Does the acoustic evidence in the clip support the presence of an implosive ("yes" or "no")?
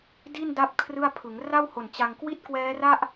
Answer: no